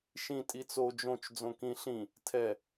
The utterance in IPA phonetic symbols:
ʃĩ tʼit͡so d͡ʒõt͡ʃ d͡zõkĩ ɬĩ | tʰɛ

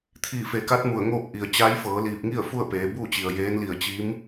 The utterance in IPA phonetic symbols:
t̪ʰiː˧˩fe˩˧ka˧˥t̚ mu˧˩ə̯ŋoː˥˨p̚ ʔi˩ə̯ t͡ɕa˧˥jfɤː˩˧liː˧˩p̚ŋi˥˨ə̯ fu˥˨ə̯peː˩˧ buː˥˨t͡ɕi˩ə̯ jeː˧˥nli˧˩ə̯ t͡ɕiː˧˥m

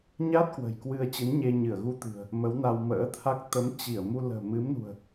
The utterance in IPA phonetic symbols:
ɲa˦˥t̚ kwə̤˨˩jkwɨ˧ə̯t͡ɕɨ˨˦nɲe˧ ɲɨ˧˩ə̯ɣu˧t̪ɨ̤˨˩ə̯ | mə˨˦wna˧w mə̰ː˧˥t̪ʰa˦˥k̚ t̪ə˨˦m t͡ɕi˧˩ə̯mu˧ lə̤ː˨˩mɨ˨˦mnṳ˨˩ə̯

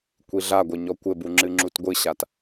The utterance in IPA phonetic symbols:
kʷiɮaɡʷɘ ɲɔkʷɘbu ŋ͡ǁɨŋ͡ǁutɡʷɨɕat

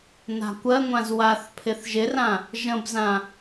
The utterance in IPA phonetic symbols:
na̤kʷɜŋʷãz waθpʰɪθ ʒɪrã | ʒə̃bzã

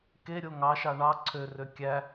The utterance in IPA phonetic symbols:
keɾʲo ŋɑʃɑ ɳɑ ǀʰørø kʲæ

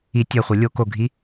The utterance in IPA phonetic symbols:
i tʲɜ χʷə lʲo koɡʱi

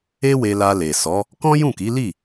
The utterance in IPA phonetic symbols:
e˦we˧ la˧le˨ sɔ˨˦ | kɔ̃˦jũ˦˨ki˨˦li˦˨

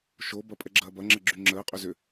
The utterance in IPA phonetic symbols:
ʃobɐ pʼɛɡ͡ǁɐːbɐŋ͡ǁə ɡ͡ǁyŋ͡ǁəːqʼʏ zʏ

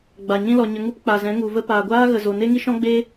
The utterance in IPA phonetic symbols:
ɡ͡ba˨ ɲĩ˧lɔ˨ ɲə˧ŋu˦p k͡pa˨zɛ̃˨˦ŋu˨və˦ paː˨ɡʷaː˦ ɣə˧ zo˨ne˦ŋi˦ ʃɔ̃˦ɡ͡be˦

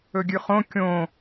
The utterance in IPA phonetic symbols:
ɵɡʲʉχõ kʲõ

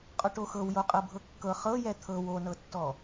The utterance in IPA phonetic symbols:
qʼɔʈoxɤw joqʼɤbʱɤkːɤ χɤjɛ t̪ʰɤw onɤtːɔ

